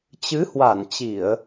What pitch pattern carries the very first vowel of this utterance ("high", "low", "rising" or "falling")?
rising